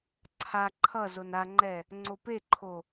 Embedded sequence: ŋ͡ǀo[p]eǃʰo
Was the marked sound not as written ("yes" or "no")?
no